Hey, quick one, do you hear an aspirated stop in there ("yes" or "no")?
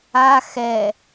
no